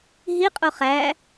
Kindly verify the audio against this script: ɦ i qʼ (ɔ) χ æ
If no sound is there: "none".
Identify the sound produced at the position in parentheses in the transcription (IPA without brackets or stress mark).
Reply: o